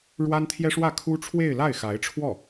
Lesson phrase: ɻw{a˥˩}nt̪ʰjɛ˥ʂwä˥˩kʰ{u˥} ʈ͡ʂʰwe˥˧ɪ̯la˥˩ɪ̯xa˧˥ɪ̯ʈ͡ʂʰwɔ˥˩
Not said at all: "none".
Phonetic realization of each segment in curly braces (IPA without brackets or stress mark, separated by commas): a˥, u˥